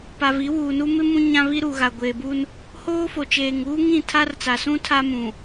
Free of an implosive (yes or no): yes